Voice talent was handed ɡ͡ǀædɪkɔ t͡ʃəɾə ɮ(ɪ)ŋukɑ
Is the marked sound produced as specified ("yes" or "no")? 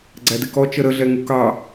no